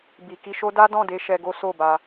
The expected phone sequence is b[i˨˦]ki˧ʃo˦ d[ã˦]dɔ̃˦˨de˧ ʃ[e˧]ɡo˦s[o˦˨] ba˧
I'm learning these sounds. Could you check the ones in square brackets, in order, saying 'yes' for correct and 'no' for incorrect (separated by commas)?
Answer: no, no, no, yes